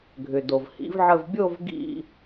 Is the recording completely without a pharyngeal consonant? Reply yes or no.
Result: no